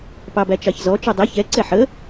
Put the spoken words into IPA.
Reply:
p ɑ b æ t͡ʃ ɑ ç z ɔ t͡ʃ u dˤ ɛ ç ɛ ǀ ɛ ħ ə

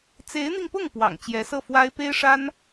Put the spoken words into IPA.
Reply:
t͡s e˧˥ ɪ̯ n̪ i˧ ŋ p ʊ˥˩ ŋ p w ɑ̰˨˩ ŋ t͡ɕ j ɛ˧˥ s ɤ˥˩ f w a˥ ɪ̯ p e˥ ɪ̯ ʂ a˥ n

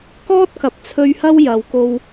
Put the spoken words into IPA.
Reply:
k ɔː˥ t̚ k ɐ˨ p̚ t͡sʰ ɵ˧ ɥ h ɐ˥ w j ɐ˨˧ w k o˧ w

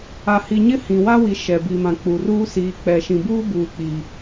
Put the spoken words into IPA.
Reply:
a˨ h i˨ ɲ ɪ˦ h ĩ˨ w a˦ w i˨ ʃ ɛ˨ b i˨ m ã˨ k͡p u˨ r uː˦ s iː˨ k͡p ɛ˨ ʃ ĩ˨ b uː˦ b uː˦ k͡p iː˦

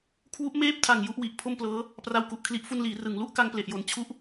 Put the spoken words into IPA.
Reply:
kʰ w u˦˥ ʔ m eː˥˩ p̚ tʰ a˨˩ ŋ j u˥˩ ʔ w i˨˩ ʔ pʰ o˥˩ m p l ɤː˦˥ | p r a˧ w k u˨˩ ʔ kʰ l i˦˥ ʔ f u˧ n l iː˩˦ r ɯ˩˦ ŋ l u˦˥ ʔ k a˧ ŋ p l e˨˩ ʔ j o˨˩ n t͡ɕʰ u˥˩ ʔ

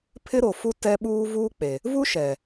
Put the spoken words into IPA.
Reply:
pʰ ɪ˦ ɾ o˨ f u˦ t ɛ˦ ɓ uː˦ v uː˦ k͡p e˨ | v u˦ ʃ ɛ˨

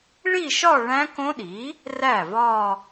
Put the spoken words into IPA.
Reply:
ɭ i˥˧ ʃ ɒ˥˧ ɭ æ̃˦˥ k õ˦˥ ɗ i˩˥ | r æ˥˩ v ɒ˥˧

